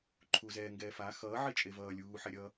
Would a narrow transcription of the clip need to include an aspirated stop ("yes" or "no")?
yes